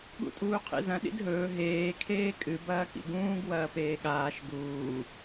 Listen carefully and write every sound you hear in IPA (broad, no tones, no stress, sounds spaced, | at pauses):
ɠ ṵ tʼ uː qʰ ḭ z ɐ̃ ɗ ḭ d ɦ ɵː ɦ eː kʰ eː kʼ ɨ b ɐː k ḭ ɡ ũː ɡ w ɐː p eː ɠ aː ʃ ɡ uː